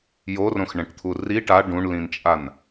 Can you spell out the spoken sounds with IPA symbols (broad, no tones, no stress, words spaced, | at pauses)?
jorõxɳɛ̃ʈt̪ʰu ri ʈa ɖũɳlĩnt͡ʃʼan